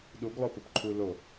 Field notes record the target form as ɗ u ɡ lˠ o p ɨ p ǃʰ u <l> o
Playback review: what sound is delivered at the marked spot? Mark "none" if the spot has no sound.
l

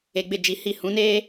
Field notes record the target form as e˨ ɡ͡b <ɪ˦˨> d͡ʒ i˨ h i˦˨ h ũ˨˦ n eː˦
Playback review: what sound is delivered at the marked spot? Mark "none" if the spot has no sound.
ɪ˦˨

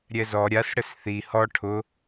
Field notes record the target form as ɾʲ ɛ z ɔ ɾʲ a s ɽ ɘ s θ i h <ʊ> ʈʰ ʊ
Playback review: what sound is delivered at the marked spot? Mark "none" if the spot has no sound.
ɔ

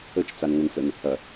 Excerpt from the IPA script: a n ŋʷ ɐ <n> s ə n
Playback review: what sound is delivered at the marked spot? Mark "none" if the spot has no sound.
n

